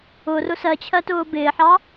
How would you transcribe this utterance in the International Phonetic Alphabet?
ʊrʊ sɜt͡ɕʰɜtʊː bɪːħɑ

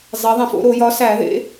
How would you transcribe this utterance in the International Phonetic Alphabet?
zˤe˨˦ðˤĩ˨˩˦fo̰˨˦ɾo˨˩˦ jɒ˨˦sæ˨˩˦ðḛ˨˦

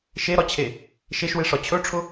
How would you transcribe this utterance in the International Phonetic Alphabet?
ʃeɾɒt͡ɕʰe | ʃeʃweʂɒ t͡ɕʰɵʈ͡ʂʰʊ

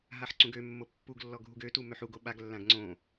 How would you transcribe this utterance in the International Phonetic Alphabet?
ɦaħǀũɡømːo pːuɡlːɔ ɡʱuɡøtu møħuɡo ɓaɡlːãɡ ŋ͡ǀõ

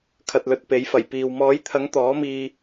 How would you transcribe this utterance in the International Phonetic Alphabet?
kʰɐ˨t̚lɵ˨t̚ pe˨˥jfɐ˨˩j piː˨w mɔː˨˥jt̪ʰɐ˨˥ŋ t̪ɔː˨˥miː˧

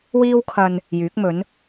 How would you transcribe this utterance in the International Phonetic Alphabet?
wiː˥wkʰɐ˧n | jyː˨˥k̚mɵ˨˥n

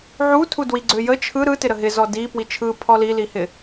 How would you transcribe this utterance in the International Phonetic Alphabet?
ʕutʰu dwiɡ͡ǀøjə t͡ʃʰɯ ɾɯ tɪɾəɦɪ zɔdi pwit͡ʃʰɯ pʰɔlilihɪ

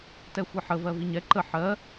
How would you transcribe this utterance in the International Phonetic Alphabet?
tɛxʷɜħə vɜviɲɛ ǃə ħɜ

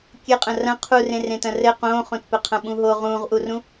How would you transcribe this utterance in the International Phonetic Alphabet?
kʲɘqʼɐ̃ rɐ̃ qʰurẽ rẽtɐ̃rɘ qõːχõtpɘqʰɐ̃ ɓũɦo ʁũːʁʔurũ

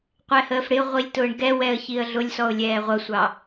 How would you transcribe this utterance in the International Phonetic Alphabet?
qʷɛhəːfɽɪʊ̯ʁʷilʲ tʊːɳɡɛwɛə̯ çiə̯ɮʊlʲsɔʊ̯ lʲɛːʁʷʌsʷɑ

